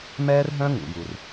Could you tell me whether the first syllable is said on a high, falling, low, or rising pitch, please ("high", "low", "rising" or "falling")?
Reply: high